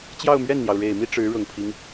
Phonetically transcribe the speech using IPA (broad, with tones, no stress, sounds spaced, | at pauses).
t͡ɕ j ɑ˥˧ ʊ̯ m ɥ ɛ˥˩ n n̪ j ɑ˩ ʊ̯ ɻ e˨˩ ɪ̯ m i˥ ʈ͡ʂ ɻ̩˧˥ ɻ ʊ˨˩ ŋ pʰ i˦ ŋ